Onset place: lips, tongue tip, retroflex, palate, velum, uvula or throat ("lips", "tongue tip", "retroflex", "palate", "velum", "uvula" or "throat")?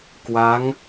velum